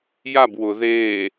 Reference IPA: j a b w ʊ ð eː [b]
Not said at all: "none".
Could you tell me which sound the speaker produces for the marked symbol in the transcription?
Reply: none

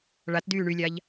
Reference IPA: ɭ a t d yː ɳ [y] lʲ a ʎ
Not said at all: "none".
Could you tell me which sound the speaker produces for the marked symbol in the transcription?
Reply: y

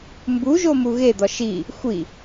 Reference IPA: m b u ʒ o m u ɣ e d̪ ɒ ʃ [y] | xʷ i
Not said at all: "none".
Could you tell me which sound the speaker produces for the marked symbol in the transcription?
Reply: i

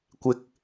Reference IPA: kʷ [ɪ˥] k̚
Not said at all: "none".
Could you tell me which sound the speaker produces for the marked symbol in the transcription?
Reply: ɪ˨˥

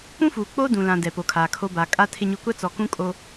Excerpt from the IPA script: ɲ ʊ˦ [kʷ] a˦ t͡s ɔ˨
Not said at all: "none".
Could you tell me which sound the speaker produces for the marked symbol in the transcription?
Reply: kʷ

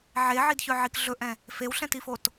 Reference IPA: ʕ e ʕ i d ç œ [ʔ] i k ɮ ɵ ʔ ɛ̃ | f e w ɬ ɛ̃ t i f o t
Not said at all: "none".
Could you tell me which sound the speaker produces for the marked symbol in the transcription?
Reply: ʕ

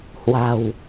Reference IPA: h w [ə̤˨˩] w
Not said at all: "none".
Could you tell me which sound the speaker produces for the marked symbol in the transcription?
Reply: a̤˨˩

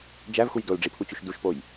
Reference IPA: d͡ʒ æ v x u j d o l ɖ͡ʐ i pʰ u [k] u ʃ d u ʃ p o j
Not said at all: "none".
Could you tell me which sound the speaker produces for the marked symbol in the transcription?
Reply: t͡ɕ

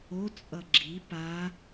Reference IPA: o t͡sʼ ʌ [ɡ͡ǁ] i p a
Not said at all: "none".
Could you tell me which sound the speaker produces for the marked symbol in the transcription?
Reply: ɡ͡ǁ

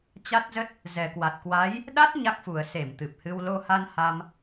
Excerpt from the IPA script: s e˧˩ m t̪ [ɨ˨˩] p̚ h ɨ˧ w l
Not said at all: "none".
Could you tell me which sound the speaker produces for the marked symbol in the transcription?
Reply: ɨ˨˩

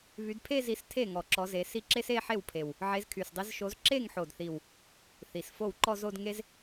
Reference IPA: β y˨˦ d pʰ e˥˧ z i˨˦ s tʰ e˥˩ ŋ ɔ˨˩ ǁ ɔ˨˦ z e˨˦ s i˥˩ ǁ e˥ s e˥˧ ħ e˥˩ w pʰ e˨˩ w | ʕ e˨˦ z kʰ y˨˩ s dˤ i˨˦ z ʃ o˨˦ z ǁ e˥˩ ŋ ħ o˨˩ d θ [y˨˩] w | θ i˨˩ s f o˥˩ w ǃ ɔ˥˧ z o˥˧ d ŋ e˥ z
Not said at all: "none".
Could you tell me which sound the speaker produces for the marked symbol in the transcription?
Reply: i˨˩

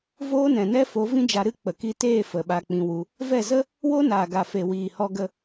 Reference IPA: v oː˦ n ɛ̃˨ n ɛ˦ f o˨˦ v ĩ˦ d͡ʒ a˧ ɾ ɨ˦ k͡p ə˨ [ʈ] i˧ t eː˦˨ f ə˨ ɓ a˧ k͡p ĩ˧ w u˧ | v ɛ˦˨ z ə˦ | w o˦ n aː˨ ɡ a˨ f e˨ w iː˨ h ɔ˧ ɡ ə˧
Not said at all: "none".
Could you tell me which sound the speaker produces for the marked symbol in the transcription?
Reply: k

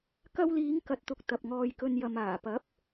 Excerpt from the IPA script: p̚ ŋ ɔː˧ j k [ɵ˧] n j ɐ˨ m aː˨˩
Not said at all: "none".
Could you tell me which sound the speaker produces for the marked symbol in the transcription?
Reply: ɵ˧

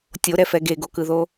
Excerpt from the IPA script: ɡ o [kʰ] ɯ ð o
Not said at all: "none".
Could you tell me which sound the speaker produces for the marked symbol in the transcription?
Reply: k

